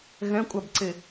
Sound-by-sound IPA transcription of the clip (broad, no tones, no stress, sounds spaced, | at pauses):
ɣ ɛ̃ kʷʼ a b ǀ e